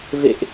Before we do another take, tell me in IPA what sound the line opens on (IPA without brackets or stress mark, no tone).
v